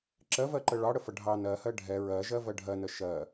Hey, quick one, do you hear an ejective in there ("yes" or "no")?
no